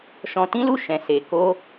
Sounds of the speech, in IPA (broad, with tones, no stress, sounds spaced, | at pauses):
ʃ ɔ̃˧ t ĩ˦ l u˦˨ ʃ ɛ̃˨ s e˨ k o˧